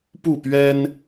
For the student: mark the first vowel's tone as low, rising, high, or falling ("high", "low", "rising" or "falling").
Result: falling